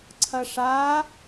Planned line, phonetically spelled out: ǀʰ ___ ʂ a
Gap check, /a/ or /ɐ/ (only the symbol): ɐ